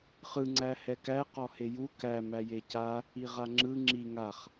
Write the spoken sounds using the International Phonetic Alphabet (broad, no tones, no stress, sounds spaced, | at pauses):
χ ɯ ŋ͡ǀ æ h ɛ k æ q ɔ h e j u k æ m æ j e c a | i ʁ a ŋ͡ǁ ɯ ŋ͡ǁ i ŋ a χ